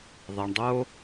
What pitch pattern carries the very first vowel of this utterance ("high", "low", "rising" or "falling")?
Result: low